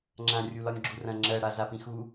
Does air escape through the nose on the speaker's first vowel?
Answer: yes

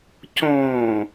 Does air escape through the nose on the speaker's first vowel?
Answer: yes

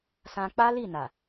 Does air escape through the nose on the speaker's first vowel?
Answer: yes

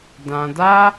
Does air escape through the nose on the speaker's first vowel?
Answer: yes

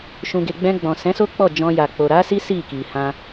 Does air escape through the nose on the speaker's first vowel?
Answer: yes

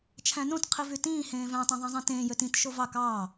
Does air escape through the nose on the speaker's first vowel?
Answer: yes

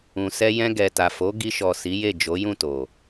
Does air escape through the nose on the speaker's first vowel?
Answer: yes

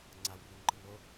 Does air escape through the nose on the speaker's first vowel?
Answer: no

